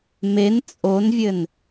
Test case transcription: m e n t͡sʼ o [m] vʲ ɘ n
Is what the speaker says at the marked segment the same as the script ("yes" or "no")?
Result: no